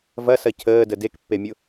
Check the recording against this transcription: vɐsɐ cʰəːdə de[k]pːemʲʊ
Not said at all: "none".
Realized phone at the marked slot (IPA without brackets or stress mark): k